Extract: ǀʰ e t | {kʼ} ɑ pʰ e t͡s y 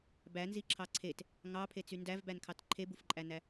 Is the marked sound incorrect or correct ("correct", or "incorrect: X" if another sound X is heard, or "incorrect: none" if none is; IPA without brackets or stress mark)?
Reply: incorrect: ŋ